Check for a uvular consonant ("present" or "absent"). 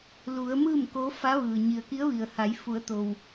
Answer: absent